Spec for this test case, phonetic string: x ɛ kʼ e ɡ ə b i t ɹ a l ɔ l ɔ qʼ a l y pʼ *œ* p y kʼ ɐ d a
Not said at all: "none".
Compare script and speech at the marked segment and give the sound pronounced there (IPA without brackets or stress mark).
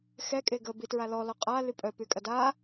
œ